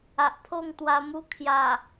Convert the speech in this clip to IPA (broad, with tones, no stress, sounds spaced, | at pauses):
a˨ ʔ pʰ o˥˧ ŋ t̪ w a˧ m u˦ kʰ j a˨˩